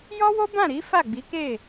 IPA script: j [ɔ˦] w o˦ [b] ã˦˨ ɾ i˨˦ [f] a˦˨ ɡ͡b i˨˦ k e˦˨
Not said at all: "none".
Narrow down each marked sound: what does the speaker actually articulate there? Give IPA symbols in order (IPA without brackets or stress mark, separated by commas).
ɔ˦, b, f